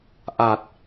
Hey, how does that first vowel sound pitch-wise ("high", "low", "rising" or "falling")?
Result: low